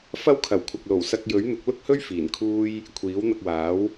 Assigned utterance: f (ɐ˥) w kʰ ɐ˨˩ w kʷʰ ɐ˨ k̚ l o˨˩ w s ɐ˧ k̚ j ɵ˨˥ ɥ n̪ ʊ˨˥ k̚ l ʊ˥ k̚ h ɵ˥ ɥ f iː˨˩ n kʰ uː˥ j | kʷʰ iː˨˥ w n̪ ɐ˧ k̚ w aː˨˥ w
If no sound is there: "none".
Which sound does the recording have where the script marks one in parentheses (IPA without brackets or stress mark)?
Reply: ɐ˥